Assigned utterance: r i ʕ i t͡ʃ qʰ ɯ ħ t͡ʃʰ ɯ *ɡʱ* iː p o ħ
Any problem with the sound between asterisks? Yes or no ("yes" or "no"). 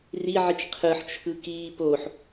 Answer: yes